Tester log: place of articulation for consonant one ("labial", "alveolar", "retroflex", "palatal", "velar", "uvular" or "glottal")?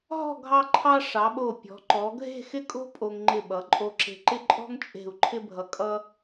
glottal